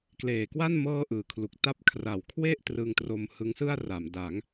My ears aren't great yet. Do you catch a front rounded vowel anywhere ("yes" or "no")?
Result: no